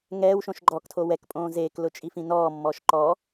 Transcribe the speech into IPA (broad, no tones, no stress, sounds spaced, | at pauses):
ŋ ɛː w ʃ õ ʃ ɡ͡ǃ ɔ k tʰ o w ɛ k pʼ õː z eː k l ʊ t͡ʃʼ i f ĩ n ɔː mː ɔː ʃ ǃ ɔ